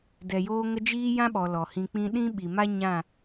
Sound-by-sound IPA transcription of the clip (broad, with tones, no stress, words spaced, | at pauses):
dɛ˨joː˧ŋə˧ d͡ʒiː˦ jã˦ɓɔ˨ lɔ˨hĩ˧k͡pĩ˦ ɗĩ˦ɓi˨ma˦ ɲã˦˨